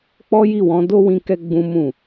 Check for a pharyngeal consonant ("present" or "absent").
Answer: absent